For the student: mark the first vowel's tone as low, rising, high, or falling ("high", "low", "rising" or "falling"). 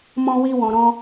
high